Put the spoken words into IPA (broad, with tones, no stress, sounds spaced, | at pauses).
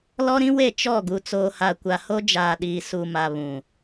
l ɔ˦ ɾ ĩ˦ w e˦˨ t͡ʃ ɔ˦˨ ɡ u˨ t͡s oː˨ h a˨ kʷ a˨ h o˦ d͡ʒ aː˨ ɗ iː˨ s u˨ m a˨ β ũ˨